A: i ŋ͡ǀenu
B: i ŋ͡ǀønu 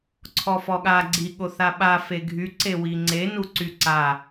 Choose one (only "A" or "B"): A